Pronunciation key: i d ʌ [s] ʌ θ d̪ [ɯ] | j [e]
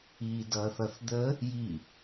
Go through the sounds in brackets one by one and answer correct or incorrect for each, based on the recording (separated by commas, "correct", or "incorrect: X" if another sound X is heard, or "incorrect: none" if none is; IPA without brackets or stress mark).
incorrect: θ, incorrect: ə, incorrect: i